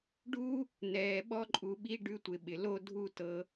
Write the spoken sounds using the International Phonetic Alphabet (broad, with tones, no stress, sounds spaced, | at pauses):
ɖ u˦ | n ɛː˩ ɓ ɔ˦ ǃʼ u˨ ɓ i˦ ɖ ʉ˦ tʷ ɪ˨ ɓ ɪ˩ l o˥ dʱ u˥ t ɤ˦